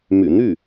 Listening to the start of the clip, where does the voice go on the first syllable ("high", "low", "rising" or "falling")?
low